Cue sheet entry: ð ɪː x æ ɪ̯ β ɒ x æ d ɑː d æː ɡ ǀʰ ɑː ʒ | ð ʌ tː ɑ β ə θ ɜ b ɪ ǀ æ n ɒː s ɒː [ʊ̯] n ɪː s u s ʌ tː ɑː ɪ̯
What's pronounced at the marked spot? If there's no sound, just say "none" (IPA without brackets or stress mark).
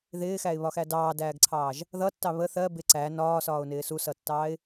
ʊ̯